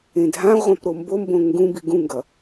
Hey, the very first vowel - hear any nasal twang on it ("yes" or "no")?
yes